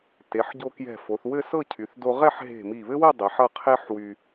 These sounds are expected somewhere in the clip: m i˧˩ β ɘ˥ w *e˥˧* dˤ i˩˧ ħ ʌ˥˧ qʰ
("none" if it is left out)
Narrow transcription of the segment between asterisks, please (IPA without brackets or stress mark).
ɘ˥˧